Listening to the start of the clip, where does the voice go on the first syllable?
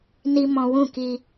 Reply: high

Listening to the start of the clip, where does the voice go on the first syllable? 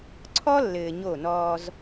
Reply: high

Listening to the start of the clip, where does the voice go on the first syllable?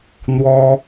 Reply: high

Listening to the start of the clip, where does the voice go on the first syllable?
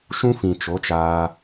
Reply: high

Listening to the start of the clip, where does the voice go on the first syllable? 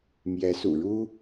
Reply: rising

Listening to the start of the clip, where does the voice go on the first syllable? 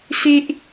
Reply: high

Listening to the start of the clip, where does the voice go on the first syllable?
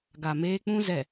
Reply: low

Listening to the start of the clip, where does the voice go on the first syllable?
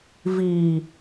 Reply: low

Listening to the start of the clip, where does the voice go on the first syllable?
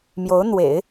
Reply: rising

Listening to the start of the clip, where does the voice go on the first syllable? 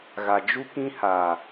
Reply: low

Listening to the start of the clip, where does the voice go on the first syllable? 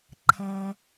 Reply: low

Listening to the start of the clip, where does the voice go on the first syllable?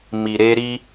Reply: low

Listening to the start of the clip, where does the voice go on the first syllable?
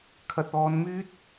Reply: low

